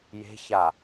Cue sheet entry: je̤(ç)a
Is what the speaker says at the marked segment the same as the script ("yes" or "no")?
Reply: yes